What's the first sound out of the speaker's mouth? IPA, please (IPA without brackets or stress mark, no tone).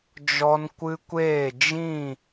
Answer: d͡ʒ